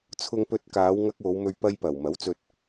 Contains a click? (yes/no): no